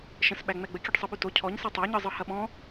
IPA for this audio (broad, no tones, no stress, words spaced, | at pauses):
ʃə̃sɓæ ŋ͡mɛɡ͡bəkʲɯɖ sˤɯɓyto cʰɔɲsɛ tˤaɲɯzˤɯ hɐɓɔ̃